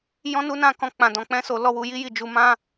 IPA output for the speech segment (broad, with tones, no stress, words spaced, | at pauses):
jɔ̃˦nu˦nã˦˨kɔ̃˧ k͡pã˨dɔ̃˨k͡pɛ̃˧so˨ lɔ˧wu˨ ji˧ji˨d͡ʒu˨ mã˧